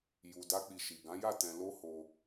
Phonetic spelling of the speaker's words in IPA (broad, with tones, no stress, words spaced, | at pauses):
ju˧da˦k͡pi˧ ʃi˨ɡã˨˦ ja˦˨ tɛ̃˧lo˦ho˧